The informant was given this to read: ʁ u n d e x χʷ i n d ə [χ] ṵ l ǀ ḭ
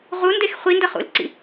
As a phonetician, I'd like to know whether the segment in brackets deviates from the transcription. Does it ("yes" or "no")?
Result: no